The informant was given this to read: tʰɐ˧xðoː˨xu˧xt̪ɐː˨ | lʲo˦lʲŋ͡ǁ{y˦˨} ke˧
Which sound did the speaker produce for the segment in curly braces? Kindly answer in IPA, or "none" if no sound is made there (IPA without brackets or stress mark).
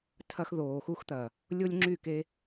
y˦˨